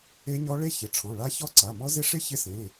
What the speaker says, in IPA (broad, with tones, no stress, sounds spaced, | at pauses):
e˦˥ ɲ ɔ˦˥ ɭ e˦˥ ç ɪ˩˧˩ ʈ͡ʂʰ ɔ̃˩˧˩ ɭ a˦˥ ç ɔ˦˥ ǀ a˩˧˩ m ɔ˦˥ z ɪ˦˥ ʂ ɪ˦˥ ç ɪ˦˥ s ẽ˩˧˩